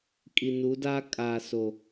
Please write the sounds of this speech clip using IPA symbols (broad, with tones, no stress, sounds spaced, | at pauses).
kʼ i˨ n u˨˦ d aː˦ kʼ a˨ s o˨